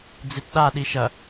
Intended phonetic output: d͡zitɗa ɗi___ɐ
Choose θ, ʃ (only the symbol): ʃ